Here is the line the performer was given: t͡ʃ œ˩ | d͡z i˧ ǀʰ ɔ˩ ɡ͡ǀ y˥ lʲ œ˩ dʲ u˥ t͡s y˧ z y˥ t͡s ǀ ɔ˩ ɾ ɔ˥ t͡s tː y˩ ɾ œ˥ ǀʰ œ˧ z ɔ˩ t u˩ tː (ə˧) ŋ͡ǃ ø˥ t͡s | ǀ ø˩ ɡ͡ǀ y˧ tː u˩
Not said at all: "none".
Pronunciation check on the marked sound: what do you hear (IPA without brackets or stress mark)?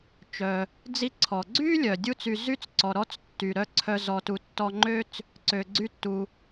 ɔ˧